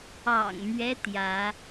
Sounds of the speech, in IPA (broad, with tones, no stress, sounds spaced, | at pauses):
ɑ̰˨˩ ŋ m ɥ ɛ˦ t̪ j ä˨˦